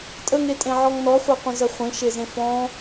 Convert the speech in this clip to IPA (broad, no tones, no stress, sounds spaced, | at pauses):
tʼ ə ŋ e tʼ ẽ ʕ ɔ ŋ n ɔ χʷ e qʷ ə̃ z ə χʷ ẽ ʃ e z ẽ f ɔ̃